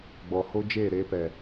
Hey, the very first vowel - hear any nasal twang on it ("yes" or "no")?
no